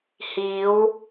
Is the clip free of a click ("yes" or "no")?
yes